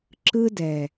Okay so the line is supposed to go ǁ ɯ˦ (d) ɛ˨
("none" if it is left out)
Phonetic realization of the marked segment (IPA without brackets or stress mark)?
d